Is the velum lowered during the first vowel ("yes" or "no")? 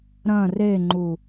yes